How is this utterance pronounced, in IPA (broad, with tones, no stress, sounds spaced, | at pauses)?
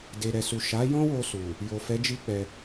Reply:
d e˨ ɾ ɛ˨ s u˨ ʃ a˨˦ j ɔ̃˦ w o˧ s u˨ | j o˨ f ɛ˨˦ d͡ʒ i˦ k͡p ɛ˧